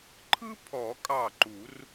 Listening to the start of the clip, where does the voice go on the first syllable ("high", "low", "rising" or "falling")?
high